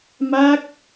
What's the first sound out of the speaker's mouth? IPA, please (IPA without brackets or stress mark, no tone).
m